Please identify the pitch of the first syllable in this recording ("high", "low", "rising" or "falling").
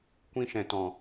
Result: high